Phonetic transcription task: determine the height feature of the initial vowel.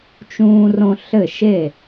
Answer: high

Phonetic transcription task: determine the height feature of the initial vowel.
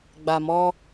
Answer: low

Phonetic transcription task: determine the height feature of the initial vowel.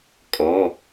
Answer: mid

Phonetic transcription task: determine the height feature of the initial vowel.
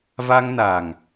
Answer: low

